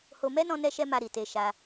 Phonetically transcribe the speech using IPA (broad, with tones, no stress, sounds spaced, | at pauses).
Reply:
h o˦ m ɛ˦ n ɔ̃˧ n ɛ˦ ʃ ɛ˦ m a˧ ɾ i˨ t e˧ ʃ a˧